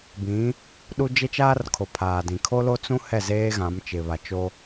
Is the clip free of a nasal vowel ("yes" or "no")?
no